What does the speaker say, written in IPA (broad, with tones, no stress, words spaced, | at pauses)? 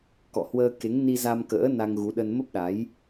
kɔ̰˧˨hwəː˧ ke˨˦ŋni˧za˧mkə̰ː˧˥ na˧ŋɣu˨˦ɗə˧n mə˦˥p̚ɗa˨˦j